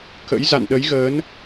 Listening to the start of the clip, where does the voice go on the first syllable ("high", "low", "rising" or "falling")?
rising